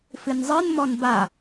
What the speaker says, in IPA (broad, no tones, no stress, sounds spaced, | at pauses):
f ɨ n zˤ ɨ n m ɔ n b a